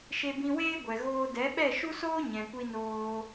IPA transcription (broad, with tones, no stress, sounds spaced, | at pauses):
ʃ e˧ b ĩ˧ w eː˦ ɡʷ ɛ˨ ɣ oː˧ d ɛ˨˦ ɓ ɛ˦˨ ʃ u˦ s oː˦ ɲ ɛ̃˨ kʷ i˧ n oː˧